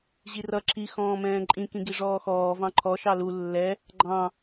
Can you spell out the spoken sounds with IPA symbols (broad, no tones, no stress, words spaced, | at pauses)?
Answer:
ʑirʌ ǁʰi xɔ̃ːmɛ̃ːǃʼĩ kĩɡiʐɔːxɔː vɑ̃ǃʰɔ ʃɑlu lːɛ | ɡ͡ǃɑ̃